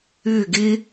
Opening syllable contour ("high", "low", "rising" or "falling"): falling